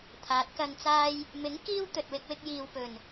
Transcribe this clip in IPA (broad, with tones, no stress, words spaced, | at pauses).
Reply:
t̪ʰaː˨˥t̚kɐ˧nt͡saː˥j | mɪ˨˥ŋ kiː˥w t̪ɵ˨t̚wɪ˧k̚wɪ˧k̚ jiː˨wpɵ˨˩n